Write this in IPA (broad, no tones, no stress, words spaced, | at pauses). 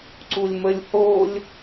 ǀulʲməlʲ holʲ